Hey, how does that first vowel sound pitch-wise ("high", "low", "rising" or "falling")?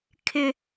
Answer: high